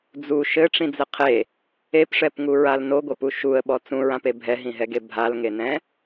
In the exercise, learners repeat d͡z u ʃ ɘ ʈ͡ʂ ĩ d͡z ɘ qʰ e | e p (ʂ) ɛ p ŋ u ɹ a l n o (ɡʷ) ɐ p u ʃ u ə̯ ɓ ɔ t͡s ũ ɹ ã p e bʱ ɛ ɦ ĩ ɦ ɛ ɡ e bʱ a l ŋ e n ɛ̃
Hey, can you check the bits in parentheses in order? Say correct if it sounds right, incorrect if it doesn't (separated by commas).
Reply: correct, correct